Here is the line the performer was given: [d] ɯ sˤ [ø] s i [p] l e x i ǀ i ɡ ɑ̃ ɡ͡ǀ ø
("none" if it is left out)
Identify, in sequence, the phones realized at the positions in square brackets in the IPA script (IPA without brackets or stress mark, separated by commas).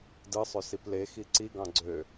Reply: d, ø, p